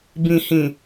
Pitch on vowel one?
low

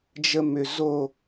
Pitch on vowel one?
low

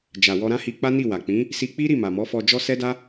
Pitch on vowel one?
low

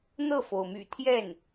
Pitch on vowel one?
falling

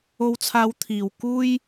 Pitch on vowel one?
high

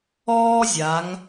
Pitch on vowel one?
high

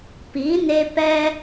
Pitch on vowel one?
rising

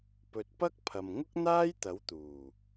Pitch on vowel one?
low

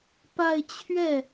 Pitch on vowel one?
falling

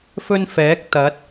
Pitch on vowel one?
high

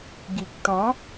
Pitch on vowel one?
low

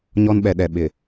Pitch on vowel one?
high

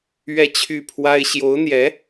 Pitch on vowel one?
falling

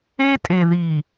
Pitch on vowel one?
high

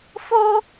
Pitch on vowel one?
high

